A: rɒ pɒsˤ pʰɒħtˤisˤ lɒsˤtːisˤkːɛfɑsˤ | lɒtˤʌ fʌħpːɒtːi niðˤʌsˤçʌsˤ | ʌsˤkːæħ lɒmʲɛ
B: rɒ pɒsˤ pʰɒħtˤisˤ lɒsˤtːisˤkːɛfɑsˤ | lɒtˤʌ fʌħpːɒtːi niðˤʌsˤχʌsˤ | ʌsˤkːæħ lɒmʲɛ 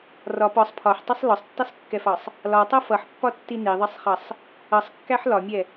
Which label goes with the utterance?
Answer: B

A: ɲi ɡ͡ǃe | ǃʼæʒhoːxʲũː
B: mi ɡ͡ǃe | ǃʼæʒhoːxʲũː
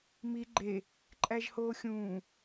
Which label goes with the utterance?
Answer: B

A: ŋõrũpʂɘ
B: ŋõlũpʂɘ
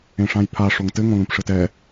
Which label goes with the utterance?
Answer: B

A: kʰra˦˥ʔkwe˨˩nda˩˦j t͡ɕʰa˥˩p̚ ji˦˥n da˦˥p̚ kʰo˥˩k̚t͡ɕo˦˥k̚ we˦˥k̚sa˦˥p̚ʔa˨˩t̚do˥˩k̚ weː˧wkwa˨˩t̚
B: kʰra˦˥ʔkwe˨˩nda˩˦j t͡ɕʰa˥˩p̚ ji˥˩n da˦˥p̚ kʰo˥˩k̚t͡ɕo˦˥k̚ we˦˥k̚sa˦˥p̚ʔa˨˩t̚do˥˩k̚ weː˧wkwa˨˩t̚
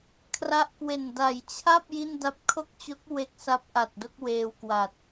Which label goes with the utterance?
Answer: B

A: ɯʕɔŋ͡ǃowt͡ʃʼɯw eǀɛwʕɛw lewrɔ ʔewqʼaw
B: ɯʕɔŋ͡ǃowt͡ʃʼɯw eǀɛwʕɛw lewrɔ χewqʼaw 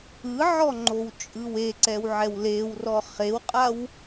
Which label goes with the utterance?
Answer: B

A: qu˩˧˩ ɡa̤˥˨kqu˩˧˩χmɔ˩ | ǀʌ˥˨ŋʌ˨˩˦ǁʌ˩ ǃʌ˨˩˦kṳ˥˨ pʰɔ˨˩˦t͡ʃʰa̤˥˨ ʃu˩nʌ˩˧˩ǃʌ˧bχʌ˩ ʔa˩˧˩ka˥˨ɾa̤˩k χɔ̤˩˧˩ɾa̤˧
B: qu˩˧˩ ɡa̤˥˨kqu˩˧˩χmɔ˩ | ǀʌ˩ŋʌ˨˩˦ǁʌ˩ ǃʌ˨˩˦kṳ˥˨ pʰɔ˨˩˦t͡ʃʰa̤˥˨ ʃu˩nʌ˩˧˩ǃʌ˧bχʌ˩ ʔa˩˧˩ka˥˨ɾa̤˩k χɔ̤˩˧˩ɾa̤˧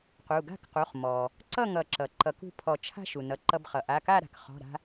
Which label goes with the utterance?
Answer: A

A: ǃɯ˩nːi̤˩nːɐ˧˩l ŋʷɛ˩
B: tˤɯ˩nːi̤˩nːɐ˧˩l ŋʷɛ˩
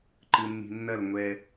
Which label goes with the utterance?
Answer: A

